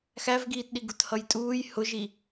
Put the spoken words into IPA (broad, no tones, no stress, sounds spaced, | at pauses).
x æ v ɡ iː t ɗ i ɡ u t h ʌ j tʼ uː j h ʊ ʒ i